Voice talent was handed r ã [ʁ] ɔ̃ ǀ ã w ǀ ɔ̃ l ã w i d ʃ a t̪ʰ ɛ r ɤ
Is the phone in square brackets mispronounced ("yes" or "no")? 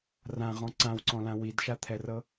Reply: no